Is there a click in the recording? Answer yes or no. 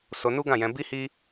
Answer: no